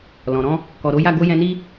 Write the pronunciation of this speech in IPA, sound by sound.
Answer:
l ɔ̃˨ ɾ ɔ̃˧ | k ɔ˨ ɾ o˨˦ j a˦˨ ɡ o˧ j ɛ̃˧ n i˦

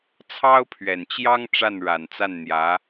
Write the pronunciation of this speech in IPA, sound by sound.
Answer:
t͡sʰ ɑ˥ ʊ̯ pʰ ɥ ɛ˨˩ n t͡ɕ j ɑ˥ ŋ ʈ͡ʂ a˥˩ n ɻ a˨˩ n t͡s a˥˩ n n̪ j ä˧˥

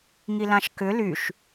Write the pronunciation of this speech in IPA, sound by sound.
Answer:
ŋ i l ã ʃ k ʏ l y ʃ

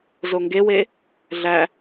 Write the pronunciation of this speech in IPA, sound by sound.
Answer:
z o ŋ ɡ e w e | ɮ æ

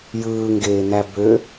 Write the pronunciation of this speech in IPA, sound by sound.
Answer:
j ɯː ŋ ɡ eː n̪ æ b ø

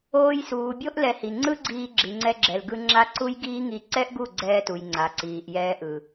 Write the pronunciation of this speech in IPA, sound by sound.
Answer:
oː˧ j s uː˨ bʲ o˦ ʔ l ɛ˧ h i˨ ŋ͡ǀ ɯ˦ ɡ͡ǀ iː˧ ɡ͡ǁ i˨ ŋ͡ǀ ɛ˧ ɡ͡ǁ ɛ˨ l ɡ ɯ˧ ŋ͡ǁ a˦ ǀ u˦ j ɡ iː˦ ŋ i˧ ǀ ɛ˦ ʔ ɡ u˦˨ ɡ͡ǀ ɛː˧ t u˨ j ŋ͡ǀ a˨ ǀ iː˨ ʔ j ɛː˧ ʔ ɯ˨

